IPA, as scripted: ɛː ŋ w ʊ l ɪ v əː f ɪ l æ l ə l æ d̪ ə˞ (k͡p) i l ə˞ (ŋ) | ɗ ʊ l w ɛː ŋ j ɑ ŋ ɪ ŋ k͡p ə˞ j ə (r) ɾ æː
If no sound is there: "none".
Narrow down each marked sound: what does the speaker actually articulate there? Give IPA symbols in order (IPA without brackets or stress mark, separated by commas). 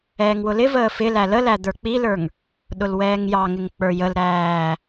k͡p, ŋ, l